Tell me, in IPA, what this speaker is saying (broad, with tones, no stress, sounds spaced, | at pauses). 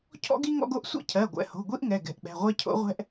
cʰ ɔ̰˥ ɡ i˥ ŋ ɔ̰˥ ɡ o˥ ʔ sʷ ɛ̰˥ cʰ ɜ˩˧˩ ɡʷ ɛ̰˩˧˩ h o̤˩˧˩ ɡʷ i˥ ʔ ŋ ɛ˩˧˩ ɡ ɛ̤˩˧˩ ʔ ɓ ɛ̤˩˧˩ ʁʷ ɛ˥ cʰ o̰˥ ʁʷ ɛ̤˥ ʔ